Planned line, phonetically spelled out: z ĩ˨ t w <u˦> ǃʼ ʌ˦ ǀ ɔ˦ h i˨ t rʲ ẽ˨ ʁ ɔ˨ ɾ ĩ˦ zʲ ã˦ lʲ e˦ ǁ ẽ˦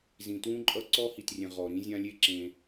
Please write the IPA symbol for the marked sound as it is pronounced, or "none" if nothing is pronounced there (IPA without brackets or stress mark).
ũ˦